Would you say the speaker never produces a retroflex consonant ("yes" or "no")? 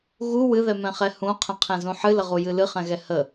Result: yes